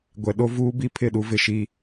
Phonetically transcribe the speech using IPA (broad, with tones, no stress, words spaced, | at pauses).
ɡʷɛ˨ɗo˦ vuː˦bi˦ pʰɪ˦˨ɗu˦vɪ˨ʃi˦